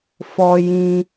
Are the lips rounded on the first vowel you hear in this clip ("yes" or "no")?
yes